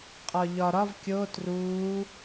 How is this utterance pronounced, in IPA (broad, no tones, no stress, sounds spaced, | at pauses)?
qʼ ɒ ʎ ɒ ɾ ɒ v kʲ o t r uː